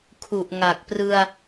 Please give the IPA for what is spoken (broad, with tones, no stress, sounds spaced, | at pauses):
kʰ u˨˩ ʔ ŋ a˨˩ k̚ p r ɯ˧ a̯